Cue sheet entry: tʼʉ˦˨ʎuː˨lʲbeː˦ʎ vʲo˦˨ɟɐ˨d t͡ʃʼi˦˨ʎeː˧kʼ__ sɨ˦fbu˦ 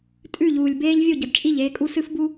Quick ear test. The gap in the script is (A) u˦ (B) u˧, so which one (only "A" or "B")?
A